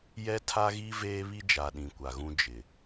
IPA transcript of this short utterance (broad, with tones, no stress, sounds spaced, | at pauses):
j ɛ˦ tʰ a˦ ɣ i˦ v eː˦ β i˦ d͡ʒ a˨ ɗ ĩ˨ kʷ a˨ ɣ ũ˦ d͡ʒ ɪ˨